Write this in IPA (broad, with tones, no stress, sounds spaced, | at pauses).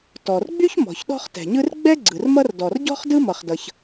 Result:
t ɔ˩ r ɡ͡b y˥ ç m ɔ̤˩ ç ɗ ɔ̤˥ χ t ɛ̤˩ ɲ ɯ˥ r ɡ͡b ɛ˥ ɡ͡ǀ ɯ˩ r m ʌ˥ r d ɔ˩ r ɟ ɔ̤˥ χ d ɯ˥ m ʌ˩ χ d ʌ˩ ç